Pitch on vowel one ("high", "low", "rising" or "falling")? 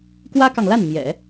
high